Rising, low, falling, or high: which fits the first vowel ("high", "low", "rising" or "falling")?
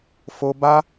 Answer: high